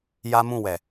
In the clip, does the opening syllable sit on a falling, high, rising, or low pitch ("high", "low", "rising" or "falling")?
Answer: high